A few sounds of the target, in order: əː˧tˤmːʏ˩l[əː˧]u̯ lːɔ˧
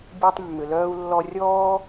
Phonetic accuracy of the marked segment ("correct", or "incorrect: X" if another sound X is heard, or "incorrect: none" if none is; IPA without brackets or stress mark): incorrect: œː˧